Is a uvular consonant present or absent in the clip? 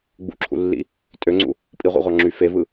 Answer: present